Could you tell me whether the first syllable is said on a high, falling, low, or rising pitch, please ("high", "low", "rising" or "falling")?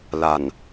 low